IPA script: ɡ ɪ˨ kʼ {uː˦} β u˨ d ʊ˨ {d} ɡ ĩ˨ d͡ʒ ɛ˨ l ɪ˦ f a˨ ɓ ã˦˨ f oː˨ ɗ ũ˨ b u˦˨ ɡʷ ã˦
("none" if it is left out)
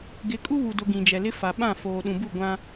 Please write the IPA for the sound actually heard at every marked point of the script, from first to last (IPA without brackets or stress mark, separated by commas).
u˦, none